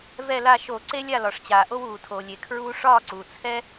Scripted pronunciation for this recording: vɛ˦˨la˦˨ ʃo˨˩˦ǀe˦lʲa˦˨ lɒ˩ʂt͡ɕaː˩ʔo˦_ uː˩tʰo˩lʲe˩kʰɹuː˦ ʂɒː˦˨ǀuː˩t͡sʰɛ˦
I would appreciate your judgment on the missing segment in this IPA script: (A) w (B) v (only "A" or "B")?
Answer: A